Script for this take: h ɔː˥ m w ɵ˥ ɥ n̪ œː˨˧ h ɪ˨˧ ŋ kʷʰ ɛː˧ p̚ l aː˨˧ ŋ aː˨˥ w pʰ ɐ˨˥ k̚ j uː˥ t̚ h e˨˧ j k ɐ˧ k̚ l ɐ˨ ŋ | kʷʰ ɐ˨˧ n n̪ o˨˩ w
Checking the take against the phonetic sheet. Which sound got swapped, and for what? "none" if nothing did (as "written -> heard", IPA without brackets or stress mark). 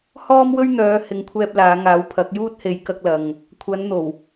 none